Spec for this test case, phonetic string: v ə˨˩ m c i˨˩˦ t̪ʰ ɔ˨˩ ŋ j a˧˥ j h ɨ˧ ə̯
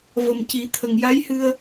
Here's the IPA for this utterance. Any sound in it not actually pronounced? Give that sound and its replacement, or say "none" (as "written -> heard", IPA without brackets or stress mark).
ɔ˨˩ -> ə˨˩